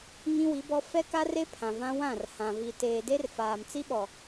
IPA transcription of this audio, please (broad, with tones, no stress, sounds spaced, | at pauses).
ŋ ĩ˦ w i˨˦ b ɔ˦ f ɛ˦ k a˦ r e˦ pʰ ã˨ v ã˦ w ã˦˨ r h ã˨ v i˨ t eː˨ d e˦ r f aː˨ m t͡s i˦ ɓ ɔ˨